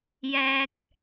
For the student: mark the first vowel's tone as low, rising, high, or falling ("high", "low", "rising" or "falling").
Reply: low